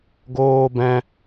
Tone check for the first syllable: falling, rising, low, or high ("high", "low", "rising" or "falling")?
high